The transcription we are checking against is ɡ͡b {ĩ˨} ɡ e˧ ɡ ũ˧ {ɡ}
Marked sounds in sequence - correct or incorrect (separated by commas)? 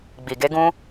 incorrect, incorrect